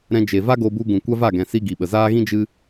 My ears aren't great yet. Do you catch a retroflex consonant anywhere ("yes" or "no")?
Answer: no